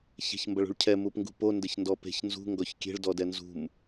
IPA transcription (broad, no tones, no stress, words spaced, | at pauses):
çɛ̤çmbɐɭṳɭcʰɛ mupŋɡṳpo ndɘçndɔpe̤ç nzṳ ŋɡɔçkʲe̤ɭ dɔdɛnzṳm